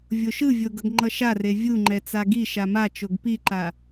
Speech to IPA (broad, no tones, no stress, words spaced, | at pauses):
vʲoʃɯvʲo ɡʌɡŋ͡ǃʌʃare vʲuŋ͡ǃɛ t͡saɡiʃa mat͡ʃoɡ piǃa